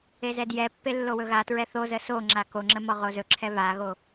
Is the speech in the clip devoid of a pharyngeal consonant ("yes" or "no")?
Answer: yes